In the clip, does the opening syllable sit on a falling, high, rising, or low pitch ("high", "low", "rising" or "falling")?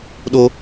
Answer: low